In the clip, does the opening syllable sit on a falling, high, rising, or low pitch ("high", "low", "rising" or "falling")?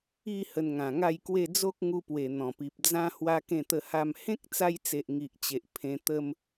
falling